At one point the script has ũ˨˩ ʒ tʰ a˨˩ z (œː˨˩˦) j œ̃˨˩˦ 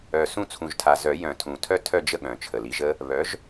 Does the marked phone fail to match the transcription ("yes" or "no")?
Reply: yes